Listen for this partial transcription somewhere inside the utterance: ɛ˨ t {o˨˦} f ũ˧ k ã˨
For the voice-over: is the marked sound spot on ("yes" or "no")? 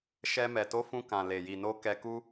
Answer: yes